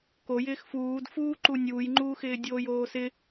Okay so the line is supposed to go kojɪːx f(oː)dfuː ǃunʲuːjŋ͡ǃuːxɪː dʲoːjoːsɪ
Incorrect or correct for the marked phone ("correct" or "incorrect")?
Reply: incorrect